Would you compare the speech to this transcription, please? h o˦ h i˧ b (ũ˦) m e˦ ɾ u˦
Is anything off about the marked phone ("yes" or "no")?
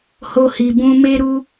no